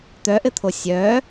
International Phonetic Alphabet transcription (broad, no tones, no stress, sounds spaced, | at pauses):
t̪ œ ʔ ɘ t̪ʰ o sʲ œ